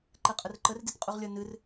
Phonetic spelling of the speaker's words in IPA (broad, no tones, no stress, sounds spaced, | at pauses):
ǃ ɛ qʼ ə r ǃ ə r d i t qʼ u ʁ lʲ ʌ n ɨ r